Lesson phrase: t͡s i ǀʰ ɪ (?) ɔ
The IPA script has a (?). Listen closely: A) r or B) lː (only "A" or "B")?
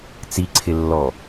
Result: B